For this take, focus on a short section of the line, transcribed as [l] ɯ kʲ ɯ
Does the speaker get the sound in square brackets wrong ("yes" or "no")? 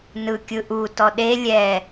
yes